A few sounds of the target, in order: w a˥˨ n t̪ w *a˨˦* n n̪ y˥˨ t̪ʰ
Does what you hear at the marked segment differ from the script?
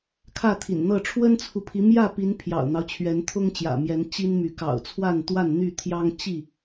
yes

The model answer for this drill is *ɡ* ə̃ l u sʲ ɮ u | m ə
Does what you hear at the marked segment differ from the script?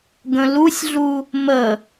no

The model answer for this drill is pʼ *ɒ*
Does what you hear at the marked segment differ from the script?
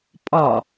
no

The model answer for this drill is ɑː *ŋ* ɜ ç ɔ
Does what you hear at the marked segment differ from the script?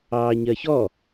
yes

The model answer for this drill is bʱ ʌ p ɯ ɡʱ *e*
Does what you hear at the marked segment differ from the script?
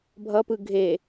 no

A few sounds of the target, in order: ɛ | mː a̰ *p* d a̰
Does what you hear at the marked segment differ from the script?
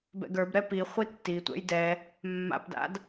no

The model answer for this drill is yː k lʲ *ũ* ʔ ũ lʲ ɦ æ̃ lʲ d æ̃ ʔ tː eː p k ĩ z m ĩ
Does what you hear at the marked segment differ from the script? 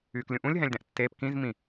no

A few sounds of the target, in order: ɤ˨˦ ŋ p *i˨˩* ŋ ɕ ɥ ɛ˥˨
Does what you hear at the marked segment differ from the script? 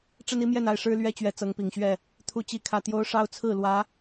no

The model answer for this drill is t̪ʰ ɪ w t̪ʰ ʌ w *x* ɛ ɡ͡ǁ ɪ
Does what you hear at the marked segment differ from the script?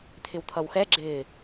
no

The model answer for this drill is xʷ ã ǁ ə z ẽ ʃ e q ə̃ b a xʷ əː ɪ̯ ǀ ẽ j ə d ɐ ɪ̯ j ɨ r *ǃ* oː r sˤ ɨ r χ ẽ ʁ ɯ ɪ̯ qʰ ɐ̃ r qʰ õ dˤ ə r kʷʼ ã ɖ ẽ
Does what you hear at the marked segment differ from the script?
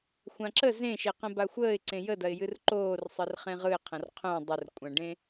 no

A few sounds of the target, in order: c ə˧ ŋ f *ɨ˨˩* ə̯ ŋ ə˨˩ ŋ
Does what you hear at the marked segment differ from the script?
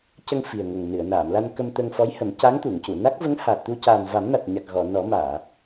yes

